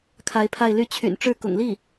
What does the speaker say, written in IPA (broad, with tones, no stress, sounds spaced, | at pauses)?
kʰ a˧˥ ɪ̯ pʰ a˥˧ ɪ̯ l y˥˩ t͡ɕʰ y̰˨˩ n ʈ͡ʂ ɻ̩˥˩ k ʊ̰˨˩ ŋ l i˥˩